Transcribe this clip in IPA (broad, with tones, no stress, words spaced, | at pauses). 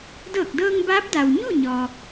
dɤː˧˩k̚dɤː˧ŋ baː˧˥p̚da˩w ɲu˥˨ɲɔː˩